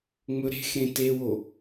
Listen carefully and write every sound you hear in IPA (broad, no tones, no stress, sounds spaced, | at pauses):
ŋ͡m ɵ ɾ e̤ x ɾ ẽ t e w o